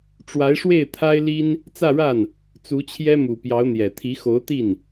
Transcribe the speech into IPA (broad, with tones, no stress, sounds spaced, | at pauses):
ʈ͡ʂ w a˧˥ ɪ̯ ʂ w e˥˩ ɪ̯ t̪ʰ a˥ ɪ̯ l i˥ n | t͡s ä˥˧ ɻ a˥˩ n | t͡s u˧˥ t͡ɕʰ j ɛ˥ m u˨˩ p j ɑ˧˥ ʊ̯ n̪ j ɛ˨˩ t̪ʰ i˧˥ x o˧˥ ʊ̯ t̪ i˥˩ n